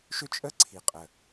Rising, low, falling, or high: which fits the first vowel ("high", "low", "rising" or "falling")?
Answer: high